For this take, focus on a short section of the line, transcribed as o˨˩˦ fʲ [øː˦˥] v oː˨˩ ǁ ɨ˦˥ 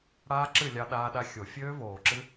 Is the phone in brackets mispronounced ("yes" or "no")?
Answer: no